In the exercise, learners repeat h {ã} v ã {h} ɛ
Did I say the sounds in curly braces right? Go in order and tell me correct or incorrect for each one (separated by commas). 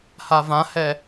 incorrect, correct